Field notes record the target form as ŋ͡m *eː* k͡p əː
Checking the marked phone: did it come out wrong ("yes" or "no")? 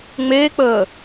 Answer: no